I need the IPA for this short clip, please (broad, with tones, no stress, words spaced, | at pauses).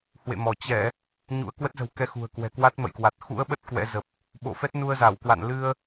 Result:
hwḛ˧˨mɔ˧˩ t͡ɕɛ˧˩˨ | ɲṵ˧˥ə̯kwə˦˥t̚zə̤˨˩wkɛ˧ xṳ˨˩ə̯kwɛ̤˨˩ kwa˦˥t̚mə̰˧˨jkwa˨˩t̚ xṵ˧˥ə̯ɓə˦˥t̚ kwɛ̰˧˥zə˨˩p̚ | ɓo̰˧˨fɛ˦˥t̚ nu˧ə̯za˧˩wkwa̰˧˨n lɨ˧ə̯